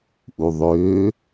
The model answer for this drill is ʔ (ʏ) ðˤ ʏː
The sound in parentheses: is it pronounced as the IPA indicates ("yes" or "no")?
no